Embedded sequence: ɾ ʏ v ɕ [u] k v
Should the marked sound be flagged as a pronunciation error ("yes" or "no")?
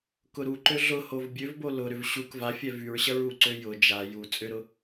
no